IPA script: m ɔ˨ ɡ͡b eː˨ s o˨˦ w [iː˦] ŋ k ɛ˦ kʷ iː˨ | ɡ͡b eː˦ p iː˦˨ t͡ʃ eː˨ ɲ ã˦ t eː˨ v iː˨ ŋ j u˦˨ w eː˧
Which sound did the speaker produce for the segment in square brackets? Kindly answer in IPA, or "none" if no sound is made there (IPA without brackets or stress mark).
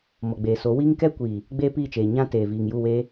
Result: iː˦